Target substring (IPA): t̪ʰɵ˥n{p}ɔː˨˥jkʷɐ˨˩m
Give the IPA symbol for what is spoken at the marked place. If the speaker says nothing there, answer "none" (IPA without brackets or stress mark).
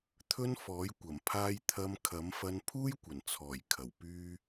f